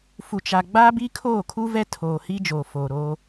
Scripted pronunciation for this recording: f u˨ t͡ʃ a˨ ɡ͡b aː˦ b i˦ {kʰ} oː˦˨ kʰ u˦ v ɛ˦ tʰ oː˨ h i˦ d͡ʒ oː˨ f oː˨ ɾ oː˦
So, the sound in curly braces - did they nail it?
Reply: yes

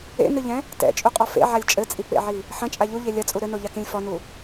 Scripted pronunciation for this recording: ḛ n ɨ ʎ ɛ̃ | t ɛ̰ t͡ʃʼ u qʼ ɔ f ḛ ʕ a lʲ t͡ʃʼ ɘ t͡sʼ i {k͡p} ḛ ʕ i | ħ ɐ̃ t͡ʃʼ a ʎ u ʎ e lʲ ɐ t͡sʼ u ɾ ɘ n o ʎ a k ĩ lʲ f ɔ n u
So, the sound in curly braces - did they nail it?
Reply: yes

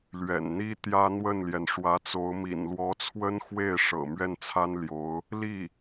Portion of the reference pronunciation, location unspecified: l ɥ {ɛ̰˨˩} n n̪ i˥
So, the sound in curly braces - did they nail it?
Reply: yes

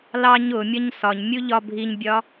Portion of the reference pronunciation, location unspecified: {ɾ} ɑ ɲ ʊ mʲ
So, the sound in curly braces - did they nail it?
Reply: no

